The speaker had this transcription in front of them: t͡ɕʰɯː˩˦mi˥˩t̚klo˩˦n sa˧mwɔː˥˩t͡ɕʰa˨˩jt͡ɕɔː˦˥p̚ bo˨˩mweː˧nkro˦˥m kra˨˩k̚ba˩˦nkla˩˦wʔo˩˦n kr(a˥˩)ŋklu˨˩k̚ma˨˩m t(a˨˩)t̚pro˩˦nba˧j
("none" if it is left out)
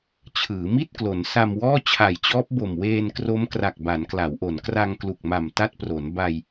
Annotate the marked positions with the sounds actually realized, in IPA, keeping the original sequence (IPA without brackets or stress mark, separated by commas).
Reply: a˧, a˦˥